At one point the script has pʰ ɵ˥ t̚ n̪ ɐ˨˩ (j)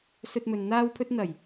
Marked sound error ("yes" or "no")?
no